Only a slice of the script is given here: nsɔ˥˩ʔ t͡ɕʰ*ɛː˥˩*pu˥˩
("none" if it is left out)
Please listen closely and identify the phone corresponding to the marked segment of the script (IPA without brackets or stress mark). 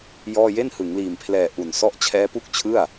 ɛː˦˥